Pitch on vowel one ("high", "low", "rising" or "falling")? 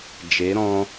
rising